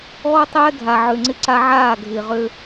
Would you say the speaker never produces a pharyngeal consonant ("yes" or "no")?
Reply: no